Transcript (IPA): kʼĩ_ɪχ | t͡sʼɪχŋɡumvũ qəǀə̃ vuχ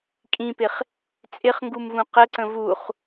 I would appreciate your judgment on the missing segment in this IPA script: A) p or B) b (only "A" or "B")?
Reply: A